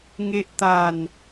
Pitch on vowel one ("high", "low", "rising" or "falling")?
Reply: high